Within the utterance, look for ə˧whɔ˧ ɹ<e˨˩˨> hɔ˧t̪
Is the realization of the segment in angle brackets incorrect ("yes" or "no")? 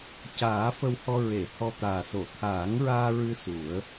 no